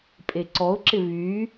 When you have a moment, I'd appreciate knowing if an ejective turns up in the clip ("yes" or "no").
yes